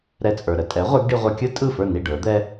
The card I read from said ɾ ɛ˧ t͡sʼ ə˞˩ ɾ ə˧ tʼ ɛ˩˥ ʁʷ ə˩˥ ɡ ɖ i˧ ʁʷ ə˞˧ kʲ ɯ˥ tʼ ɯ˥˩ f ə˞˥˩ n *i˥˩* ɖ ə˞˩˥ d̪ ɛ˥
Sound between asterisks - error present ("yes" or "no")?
no